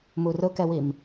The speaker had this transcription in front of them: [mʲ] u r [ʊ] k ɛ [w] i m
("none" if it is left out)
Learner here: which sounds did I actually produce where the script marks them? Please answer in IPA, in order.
m, ʊ, w

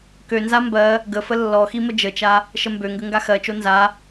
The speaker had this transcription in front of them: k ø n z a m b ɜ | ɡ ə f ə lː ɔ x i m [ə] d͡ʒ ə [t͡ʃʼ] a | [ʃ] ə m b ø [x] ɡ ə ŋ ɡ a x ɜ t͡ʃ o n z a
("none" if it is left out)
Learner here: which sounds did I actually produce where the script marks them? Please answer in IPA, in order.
ə, t͡ʃ, ʃ, ŋ

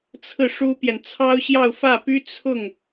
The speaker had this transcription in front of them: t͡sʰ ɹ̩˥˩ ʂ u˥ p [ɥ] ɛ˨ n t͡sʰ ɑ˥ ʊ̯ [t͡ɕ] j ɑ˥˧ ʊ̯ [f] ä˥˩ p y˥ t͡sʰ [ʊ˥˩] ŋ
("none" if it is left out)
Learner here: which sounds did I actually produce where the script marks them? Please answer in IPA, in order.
j, ɕ, f, ʊ˥˩

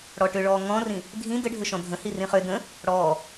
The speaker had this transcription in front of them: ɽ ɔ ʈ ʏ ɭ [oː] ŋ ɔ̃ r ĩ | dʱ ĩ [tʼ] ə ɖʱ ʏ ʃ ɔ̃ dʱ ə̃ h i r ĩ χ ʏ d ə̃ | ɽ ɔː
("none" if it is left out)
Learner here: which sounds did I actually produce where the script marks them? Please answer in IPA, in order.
ɔː, d

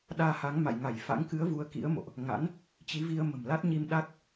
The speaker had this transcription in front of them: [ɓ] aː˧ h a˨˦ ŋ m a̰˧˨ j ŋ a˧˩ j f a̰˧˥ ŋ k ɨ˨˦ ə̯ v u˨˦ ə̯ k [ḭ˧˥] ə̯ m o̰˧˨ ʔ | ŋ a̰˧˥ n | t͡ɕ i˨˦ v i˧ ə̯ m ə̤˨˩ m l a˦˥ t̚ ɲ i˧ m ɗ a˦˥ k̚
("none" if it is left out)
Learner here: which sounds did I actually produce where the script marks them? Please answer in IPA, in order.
ɗ, ḭ˧˥

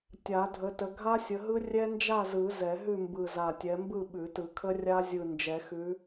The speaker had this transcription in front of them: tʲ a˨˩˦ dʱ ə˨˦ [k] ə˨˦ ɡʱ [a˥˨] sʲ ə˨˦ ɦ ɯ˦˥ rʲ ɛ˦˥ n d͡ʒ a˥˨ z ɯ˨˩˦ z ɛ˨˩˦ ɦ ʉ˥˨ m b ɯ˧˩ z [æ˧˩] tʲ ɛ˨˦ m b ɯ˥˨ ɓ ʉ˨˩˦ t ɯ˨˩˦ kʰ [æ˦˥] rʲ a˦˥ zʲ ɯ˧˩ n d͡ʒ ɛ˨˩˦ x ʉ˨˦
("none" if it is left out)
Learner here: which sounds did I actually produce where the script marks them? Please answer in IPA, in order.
t, a˦˥, a˧˩, ə˦˥

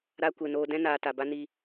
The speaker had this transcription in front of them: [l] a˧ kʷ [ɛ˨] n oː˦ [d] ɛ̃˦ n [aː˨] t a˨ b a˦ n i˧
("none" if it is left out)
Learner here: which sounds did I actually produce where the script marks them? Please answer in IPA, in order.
ɾ, ɛ˨, d, aː˨

